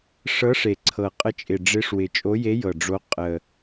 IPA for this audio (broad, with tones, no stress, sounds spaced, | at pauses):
ʂ ɤ˧˥ ʂ e˨˩ ǀʰ ɤ˨˩ qʼ ə˧˥ t͡ʃʼ ɪ˨˩ ɖ͡ʐ ɪ˧˥ ʂ w ɪ˨˩ t͡ʃʼ o˧˥ j e˧˥ j ɤ˨˩ ɖ͡ʐ o˧˥ qʼ ə˨˩